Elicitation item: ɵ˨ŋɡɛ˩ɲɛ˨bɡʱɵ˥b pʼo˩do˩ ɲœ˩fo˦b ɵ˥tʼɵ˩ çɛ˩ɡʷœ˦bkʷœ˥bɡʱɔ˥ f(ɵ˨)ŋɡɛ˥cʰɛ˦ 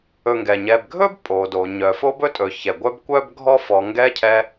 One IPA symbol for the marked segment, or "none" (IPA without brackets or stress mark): ɔ˨